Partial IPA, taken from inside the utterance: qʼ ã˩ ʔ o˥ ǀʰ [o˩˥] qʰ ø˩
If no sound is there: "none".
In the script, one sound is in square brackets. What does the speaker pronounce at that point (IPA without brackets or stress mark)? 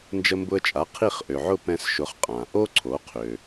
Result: o˩˥